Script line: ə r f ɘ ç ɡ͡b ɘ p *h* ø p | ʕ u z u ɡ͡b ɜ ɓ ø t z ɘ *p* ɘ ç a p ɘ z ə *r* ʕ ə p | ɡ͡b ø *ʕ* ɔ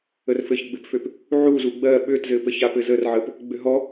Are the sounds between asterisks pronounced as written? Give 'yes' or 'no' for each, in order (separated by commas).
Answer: no, yes, yes, no